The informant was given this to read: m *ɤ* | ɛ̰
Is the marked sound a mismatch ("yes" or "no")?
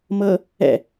no